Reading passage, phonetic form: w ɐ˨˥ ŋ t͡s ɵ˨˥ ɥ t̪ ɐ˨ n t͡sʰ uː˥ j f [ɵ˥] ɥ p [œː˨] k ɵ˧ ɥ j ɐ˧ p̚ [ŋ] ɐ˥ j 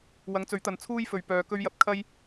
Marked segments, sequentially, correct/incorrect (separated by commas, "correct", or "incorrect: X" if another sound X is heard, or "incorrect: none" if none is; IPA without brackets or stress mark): incorrect: ɵ˨, correct, incorrect: kʰ